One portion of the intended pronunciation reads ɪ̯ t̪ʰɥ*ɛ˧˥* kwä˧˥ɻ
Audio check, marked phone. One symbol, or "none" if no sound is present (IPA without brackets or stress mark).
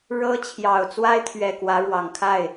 ɛ˨˩